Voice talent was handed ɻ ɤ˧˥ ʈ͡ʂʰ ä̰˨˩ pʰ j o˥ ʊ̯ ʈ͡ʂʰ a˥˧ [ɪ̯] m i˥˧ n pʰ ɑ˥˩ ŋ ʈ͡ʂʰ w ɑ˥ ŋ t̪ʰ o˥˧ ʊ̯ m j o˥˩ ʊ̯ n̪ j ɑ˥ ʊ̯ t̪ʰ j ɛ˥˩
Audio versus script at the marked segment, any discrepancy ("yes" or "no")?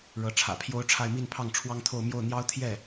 no